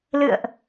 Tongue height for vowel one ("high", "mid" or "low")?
high